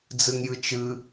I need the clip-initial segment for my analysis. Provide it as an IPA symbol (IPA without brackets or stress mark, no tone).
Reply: d͡z